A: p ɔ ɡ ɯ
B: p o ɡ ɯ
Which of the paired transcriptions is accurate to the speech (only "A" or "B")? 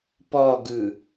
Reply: A